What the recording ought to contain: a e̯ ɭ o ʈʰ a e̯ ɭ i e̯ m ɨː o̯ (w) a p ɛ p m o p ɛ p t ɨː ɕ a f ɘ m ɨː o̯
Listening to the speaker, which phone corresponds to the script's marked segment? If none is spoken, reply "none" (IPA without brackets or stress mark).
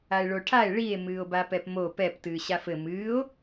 b